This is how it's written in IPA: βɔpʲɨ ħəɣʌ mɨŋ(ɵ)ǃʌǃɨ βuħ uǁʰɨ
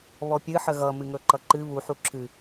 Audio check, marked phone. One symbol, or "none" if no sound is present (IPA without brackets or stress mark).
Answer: ɵ